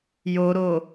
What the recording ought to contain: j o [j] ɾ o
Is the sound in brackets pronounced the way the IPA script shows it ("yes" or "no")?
no